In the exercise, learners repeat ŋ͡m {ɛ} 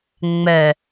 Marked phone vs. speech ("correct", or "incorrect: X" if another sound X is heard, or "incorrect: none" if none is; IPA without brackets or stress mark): correct